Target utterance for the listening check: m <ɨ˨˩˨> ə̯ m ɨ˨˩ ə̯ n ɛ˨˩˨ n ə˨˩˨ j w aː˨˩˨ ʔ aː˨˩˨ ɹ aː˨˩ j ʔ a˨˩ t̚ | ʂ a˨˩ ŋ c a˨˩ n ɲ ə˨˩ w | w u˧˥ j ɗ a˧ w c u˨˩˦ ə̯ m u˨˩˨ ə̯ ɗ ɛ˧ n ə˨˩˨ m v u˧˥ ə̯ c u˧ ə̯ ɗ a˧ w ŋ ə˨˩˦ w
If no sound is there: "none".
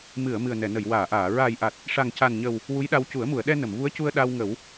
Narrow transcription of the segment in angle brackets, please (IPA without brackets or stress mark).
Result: ɨ˨˩˨